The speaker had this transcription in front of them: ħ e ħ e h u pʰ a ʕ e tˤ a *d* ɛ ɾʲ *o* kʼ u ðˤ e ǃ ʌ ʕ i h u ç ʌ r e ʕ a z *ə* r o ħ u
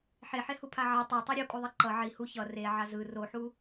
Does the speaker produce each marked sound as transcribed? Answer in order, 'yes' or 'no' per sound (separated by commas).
no, yes, no